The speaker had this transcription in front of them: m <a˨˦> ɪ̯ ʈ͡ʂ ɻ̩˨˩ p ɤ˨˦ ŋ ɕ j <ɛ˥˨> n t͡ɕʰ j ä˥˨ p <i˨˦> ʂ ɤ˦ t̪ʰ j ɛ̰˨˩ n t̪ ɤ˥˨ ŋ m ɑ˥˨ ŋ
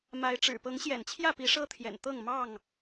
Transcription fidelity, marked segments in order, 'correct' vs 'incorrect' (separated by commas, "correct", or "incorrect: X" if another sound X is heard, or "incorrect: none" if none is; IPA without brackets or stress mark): correct, incorrect: ɛ̰˨˩, correct